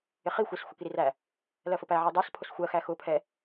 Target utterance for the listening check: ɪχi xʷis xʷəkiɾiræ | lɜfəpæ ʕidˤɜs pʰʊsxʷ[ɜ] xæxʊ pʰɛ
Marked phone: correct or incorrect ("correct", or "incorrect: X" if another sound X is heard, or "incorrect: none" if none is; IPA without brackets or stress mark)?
correct